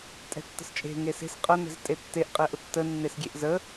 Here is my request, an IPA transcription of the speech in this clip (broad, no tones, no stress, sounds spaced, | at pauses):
tʼ ɛ̤ tː ə̤ s t͡ʃʼ e̤ ŋ e s e̤ s qʼ ɐ n ɛ̤ z tʼ e tː e ʔ qʼ ɛ ʔ ʊ tː ə nː e s ɡʲ e ʔ z ə